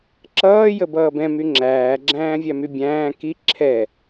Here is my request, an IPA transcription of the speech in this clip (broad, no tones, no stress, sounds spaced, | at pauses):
ǁ ʌː j ə b ʌː b ɛ̃ m y ŋ͡ǁ æː ɡ͡ǁ æ̃ː vʲ æ m y bʲ æ̃ː k i ǁʰ ɛ